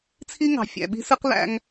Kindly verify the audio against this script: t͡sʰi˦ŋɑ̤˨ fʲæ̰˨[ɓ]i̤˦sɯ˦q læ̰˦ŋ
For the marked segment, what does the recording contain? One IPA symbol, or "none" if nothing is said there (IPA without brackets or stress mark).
ɓ